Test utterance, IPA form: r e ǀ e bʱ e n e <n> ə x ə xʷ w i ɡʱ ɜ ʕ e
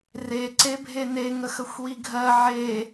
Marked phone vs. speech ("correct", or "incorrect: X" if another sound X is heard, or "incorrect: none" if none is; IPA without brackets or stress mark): incorrect: ŋ